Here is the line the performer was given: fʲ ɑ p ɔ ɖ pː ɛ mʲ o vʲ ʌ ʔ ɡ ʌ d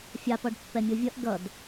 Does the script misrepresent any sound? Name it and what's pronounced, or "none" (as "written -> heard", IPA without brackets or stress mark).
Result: none